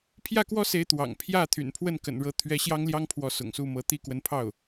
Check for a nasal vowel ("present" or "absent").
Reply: absent